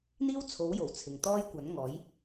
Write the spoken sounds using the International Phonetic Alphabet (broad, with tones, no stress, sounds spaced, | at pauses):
n̪ iː˥ w t͡sʰ o˨˥ w j o˨˩ w t͡sʰ ɪ˨ ŋ t̪ ɔː˥ j kʷ ɐ˨˥ n ŋ ɔː˨˥ j